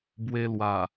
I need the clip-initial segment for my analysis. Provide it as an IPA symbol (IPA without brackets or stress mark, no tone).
b